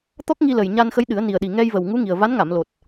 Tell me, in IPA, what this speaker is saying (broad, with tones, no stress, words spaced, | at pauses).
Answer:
t̪ɔ˦˥k̚ŋi˧lə˨˩j ɲa˧n xə˧˥jɗɨ˨˩˦ə̯ ni˨˩ə̯ɗi˨˩ŋɛ˧jvə˨˩w ŋu˧˥ŋi˨˩ə̯ va˧˥nŋa˨˩˨mlo˨˩t̚